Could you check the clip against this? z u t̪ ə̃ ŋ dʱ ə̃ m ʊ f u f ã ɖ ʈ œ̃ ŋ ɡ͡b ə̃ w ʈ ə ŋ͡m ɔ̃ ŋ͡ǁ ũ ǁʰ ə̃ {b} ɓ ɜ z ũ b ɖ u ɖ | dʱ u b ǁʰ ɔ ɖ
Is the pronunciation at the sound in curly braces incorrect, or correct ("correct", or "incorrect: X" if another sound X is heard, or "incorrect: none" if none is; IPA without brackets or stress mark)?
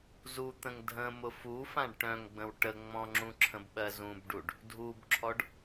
correct